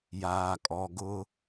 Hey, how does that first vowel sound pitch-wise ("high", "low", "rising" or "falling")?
low